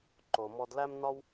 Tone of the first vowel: low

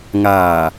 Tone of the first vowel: low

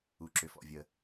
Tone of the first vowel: low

